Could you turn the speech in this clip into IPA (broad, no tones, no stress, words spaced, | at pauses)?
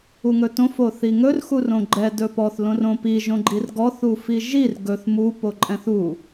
uŋɵtõf oθiŋɵr xurõɡ͡ǃɛ dɵpɔθ lõrõpi ʒõɡ͡ǃirɡɔθ ufiʒir ɡɵθ mu poǃʼɛ̃θu